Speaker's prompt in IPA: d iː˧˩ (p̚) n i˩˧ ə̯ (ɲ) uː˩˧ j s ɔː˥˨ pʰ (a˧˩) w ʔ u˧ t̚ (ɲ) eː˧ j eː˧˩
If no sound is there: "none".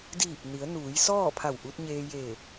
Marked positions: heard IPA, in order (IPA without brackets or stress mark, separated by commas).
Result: p̚, n, a˧˩, ɲ